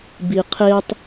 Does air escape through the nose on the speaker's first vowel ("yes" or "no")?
no